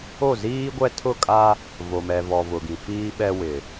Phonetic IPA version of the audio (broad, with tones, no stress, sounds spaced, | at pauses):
o˦˨ z iː˦ ɡʷ ɛ˦ tʰ ʊ˦˨ kʼ a˦ | v o˨ m ɛ˨ v ɔ˨ v ʊ˨ ɡ ĩ˨ f iː˦ ɓ ɛ˦ w ɪ˨